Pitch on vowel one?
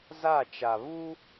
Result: falling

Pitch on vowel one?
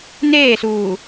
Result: falling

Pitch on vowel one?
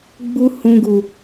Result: high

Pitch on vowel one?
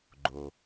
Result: low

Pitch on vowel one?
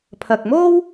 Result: low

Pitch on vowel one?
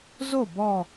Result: falling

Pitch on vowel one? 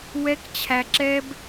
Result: high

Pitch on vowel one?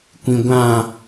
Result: low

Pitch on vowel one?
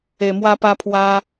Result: low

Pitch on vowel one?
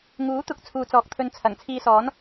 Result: rising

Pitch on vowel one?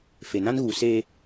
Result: low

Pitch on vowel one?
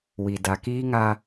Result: low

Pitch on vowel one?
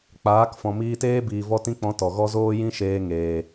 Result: rising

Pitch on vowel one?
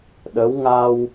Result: rising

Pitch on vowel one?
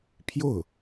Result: falling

